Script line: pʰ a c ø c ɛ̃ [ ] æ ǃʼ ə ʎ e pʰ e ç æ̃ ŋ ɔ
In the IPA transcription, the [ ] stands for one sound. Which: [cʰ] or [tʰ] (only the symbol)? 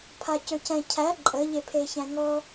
cʰ